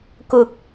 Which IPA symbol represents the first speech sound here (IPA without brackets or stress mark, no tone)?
k